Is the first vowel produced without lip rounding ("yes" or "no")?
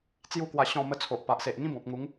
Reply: no